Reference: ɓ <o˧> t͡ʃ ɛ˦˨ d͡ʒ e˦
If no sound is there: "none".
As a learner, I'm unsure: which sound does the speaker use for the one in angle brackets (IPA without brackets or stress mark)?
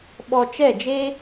ɔ˧